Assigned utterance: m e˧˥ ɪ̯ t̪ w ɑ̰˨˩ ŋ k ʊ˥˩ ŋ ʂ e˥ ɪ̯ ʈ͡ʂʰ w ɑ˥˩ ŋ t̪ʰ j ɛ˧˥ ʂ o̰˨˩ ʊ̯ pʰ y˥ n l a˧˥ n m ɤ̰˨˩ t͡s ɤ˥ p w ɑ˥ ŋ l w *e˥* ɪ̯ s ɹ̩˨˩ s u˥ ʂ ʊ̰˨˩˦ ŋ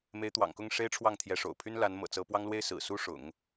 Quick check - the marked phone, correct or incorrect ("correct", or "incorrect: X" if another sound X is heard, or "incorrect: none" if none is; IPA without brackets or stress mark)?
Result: correct